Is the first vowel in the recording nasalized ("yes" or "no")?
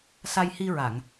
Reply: no